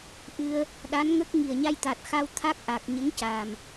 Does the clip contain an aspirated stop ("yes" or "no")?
yes